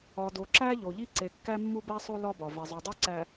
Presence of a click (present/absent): present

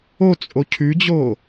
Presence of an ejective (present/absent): present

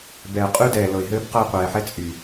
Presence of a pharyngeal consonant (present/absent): present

